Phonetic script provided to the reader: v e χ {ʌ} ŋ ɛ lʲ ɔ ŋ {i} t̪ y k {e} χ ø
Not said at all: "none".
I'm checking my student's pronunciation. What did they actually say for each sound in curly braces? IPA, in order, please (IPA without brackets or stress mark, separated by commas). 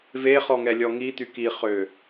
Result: ɔ, i, i